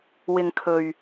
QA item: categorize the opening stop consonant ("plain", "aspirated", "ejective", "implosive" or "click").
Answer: aspirated